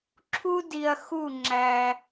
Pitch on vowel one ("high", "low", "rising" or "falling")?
high